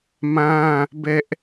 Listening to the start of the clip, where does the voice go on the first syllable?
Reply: high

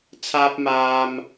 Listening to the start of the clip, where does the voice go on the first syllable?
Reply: high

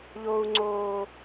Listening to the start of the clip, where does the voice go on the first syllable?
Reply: low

